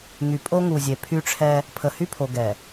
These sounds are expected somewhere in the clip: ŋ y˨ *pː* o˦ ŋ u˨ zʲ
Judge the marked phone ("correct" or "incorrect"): incorrect